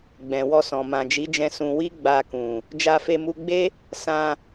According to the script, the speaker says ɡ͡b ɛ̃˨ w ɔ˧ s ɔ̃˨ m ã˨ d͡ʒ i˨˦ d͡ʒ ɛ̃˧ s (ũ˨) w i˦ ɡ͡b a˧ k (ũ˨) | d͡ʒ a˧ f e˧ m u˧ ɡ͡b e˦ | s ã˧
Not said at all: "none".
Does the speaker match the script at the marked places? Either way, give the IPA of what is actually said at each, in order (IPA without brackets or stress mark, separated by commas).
ũ˧, ũ˨